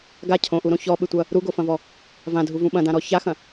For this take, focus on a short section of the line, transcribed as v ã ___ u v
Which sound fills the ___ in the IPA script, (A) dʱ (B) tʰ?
A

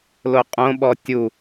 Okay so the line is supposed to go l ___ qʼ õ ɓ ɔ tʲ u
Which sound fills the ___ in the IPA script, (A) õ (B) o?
B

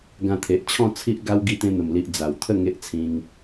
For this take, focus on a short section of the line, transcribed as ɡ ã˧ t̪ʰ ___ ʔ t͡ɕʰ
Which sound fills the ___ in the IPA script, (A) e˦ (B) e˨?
B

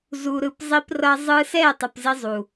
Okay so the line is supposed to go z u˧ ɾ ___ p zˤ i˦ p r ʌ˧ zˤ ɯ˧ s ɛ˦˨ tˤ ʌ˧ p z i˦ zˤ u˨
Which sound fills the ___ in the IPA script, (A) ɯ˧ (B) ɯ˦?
A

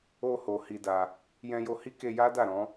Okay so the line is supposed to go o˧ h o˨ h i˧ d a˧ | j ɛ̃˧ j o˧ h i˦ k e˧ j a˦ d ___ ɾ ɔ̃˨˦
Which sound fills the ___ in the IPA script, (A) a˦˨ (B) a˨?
A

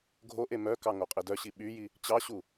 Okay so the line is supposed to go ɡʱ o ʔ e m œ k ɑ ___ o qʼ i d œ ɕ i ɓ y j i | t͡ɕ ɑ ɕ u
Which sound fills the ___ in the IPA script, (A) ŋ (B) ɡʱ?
A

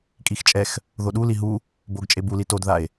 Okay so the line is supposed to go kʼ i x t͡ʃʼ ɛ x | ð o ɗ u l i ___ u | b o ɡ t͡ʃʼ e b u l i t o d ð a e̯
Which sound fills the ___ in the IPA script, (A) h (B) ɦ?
B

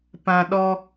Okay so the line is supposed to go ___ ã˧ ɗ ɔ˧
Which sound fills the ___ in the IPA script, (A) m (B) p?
B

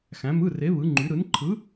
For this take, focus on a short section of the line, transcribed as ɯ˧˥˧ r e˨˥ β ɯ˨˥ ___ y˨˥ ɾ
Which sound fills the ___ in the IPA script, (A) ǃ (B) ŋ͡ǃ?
B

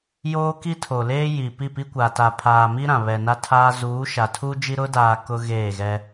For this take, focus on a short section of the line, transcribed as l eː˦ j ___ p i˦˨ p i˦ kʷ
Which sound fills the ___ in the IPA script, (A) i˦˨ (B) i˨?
B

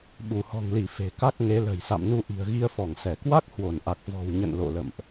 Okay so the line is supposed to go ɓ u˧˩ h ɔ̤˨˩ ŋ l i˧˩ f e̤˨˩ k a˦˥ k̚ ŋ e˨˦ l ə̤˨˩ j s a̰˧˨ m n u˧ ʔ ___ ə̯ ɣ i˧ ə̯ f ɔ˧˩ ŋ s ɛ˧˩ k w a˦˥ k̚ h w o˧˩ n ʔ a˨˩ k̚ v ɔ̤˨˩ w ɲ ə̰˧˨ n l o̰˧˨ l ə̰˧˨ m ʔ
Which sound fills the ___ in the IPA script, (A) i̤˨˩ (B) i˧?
A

